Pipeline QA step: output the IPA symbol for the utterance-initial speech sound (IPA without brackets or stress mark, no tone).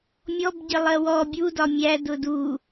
mʲ